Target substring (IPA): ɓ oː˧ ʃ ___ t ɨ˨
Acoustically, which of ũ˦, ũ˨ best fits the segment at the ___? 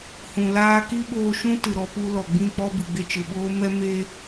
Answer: ũ˦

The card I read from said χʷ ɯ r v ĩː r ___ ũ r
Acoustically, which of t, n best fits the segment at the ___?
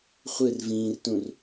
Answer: t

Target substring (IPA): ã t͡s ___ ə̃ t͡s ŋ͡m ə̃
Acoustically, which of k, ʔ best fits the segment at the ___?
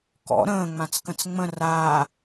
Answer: k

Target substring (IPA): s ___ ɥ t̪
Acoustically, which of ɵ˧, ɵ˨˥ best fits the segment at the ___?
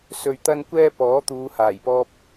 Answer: ɵ˧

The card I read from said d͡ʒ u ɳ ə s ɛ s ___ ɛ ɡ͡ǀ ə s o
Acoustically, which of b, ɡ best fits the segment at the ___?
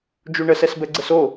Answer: b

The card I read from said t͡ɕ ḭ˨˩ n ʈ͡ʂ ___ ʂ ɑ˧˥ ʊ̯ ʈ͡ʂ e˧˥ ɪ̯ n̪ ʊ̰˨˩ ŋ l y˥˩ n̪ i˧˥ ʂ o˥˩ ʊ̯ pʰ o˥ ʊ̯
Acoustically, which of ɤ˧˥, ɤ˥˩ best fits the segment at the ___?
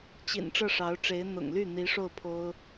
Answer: ɤ˥˩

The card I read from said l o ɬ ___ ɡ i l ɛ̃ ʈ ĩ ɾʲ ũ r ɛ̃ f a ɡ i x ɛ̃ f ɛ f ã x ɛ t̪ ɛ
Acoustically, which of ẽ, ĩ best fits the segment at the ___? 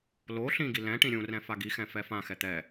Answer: ĩ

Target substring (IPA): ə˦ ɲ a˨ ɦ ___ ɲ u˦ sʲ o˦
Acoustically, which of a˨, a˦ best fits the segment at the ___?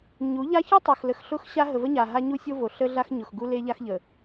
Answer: a˦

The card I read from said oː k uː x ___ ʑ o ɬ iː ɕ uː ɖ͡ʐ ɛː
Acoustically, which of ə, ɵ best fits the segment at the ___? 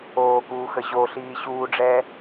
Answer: ə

